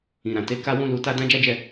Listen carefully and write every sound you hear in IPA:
ĩ˨ ɾ ã˨ t e˨˦ k a˦ w ũ˦ l u˧ t a˦ d ã˦ d͡ʒ a˦ d͡ʒ ɛ˦˨

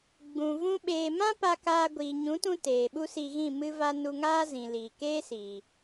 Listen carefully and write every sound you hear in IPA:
ɡ͡b ũ˨ v ũ˦ ɓ eː˧ m ã˦ p a˧ k aː˧ ɡʷ iː˨ ɲ ũ˨˦ t ũ˧ t eː˨ ɓ u˦ s i˧ ɣ ĩ˦˨ m ɨ˦ v a˦ n u˧ ŋ aː˦ z ĩ˨ l iː˨ k eː˦ s iː˨

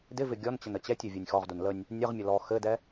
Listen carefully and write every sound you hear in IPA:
d ɪ v ɪ ɡʲ ɔ n t͡ɕ ə n ə t͡ɕ ɛ tʲ ɵ vʲ e nʲ x ɔ ʁ d u n l ə nʲ | nʲ ə ʁ mʲ ɘ l ɔ x ɘ d ɛ

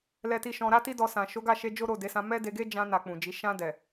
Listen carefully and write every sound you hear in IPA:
l ɛ˧ t i˧ ʃ ɔ̃˧ ɾ a˦ t i˦ d ɔ˧ s ã˨ ʃ o˨˦ ɡ a˦˨ ʃ e˧ d͡ʒ o˦ ɾ o˦˨ d e˨˦ s ã˧ m ɛ˦ d e˧ ɡ e˦ d͡ʒ ã˧ n a˨ k͡p ũ˨ d͡ʒ i˨˦ ʃ ã˧ d ɛ˨

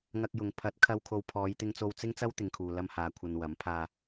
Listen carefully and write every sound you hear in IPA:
ŋ ɐ˧ k̚ j ʊ˨ ŋ pʰ ɐ˨˥ t̚ kʰ ɐ˧ w kʰ o˨ w pʰ ɔː˨˧ j t̪ ɪ˧ ŋ t͡s o˧ w t͡s ɪ˥ ŋ t͡s ɐ˥ w t̪ ɪ˧ ŋ kʰ uː˧ l ɐ˧ m h aː˨ kʷʰ ɐ˧ n w ɐ˨˥ m pʰ aː˧

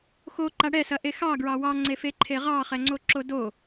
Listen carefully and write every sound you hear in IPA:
x o ǃ a ɽ ɛ s ɐ ʔ e x ɑ ɡ ɹ ɑ w ɑ ŋ͡ǀ e f e ǃʰ e ʁ ɑ χ ɛ ŋ͡ǀ o ǁ o d o

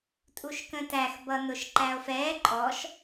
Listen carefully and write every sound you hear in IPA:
tʼ u ʃ k ə̃ t æ x b ʌ n ʊ ʃ ǃ æ o̯ f ɛː ǃʼ ɔ ʃ

